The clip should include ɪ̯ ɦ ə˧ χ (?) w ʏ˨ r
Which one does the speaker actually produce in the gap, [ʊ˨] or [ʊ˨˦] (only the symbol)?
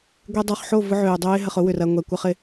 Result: ʊ˨˦